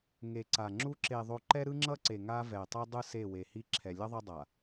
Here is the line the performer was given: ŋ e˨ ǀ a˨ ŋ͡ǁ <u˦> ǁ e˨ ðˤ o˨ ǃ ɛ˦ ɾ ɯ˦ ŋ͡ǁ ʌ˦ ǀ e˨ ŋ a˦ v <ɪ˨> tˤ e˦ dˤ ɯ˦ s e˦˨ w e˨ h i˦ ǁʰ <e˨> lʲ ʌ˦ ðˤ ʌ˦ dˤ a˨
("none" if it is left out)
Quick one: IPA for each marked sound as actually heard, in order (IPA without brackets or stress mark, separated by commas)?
u˦, ɛ˨, ɛ˨